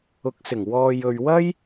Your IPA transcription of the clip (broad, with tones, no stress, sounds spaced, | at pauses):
ʊ˨˥ k̚ s ɪ˨˩ ŋ w ɔː˨ j ɵ˨ ɥ w ɐ˥ j